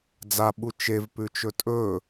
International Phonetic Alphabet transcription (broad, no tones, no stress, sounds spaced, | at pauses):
d͡z a ɓ u t͡ʃ e v p ʉ t͡ʃ ɵ tʼ ɵ